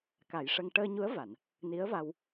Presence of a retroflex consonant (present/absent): present